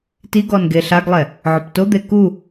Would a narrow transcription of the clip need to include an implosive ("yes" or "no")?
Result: no